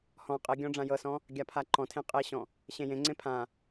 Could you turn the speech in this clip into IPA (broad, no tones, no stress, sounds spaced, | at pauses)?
h ɔ̃ qʼ e ɡʲ ɔ̃ ɖ͡ʐ ã j ɤ s ɔ̃ | ɡʲ a pʰ a ǃ ɔ̃ tʰ ẽ qʼ e ɕ ɔ̃ | ɕ ẽ j ẽ ŋ͡ǀ ẽ pʰ ã